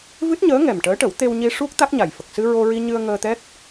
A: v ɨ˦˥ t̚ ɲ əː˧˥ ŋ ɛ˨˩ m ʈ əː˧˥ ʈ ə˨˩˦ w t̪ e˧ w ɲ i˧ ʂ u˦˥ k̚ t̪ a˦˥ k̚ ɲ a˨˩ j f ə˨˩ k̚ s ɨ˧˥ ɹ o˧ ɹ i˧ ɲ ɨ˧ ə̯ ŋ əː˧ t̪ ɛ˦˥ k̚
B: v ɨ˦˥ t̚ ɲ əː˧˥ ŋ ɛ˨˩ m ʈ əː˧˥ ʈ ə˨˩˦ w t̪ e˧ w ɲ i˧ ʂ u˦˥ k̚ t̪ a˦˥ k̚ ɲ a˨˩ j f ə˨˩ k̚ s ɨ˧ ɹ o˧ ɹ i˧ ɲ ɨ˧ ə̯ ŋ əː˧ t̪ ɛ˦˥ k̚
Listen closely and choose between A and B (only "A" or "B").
B